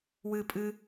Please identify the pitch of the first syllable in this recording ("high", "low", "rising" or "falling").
high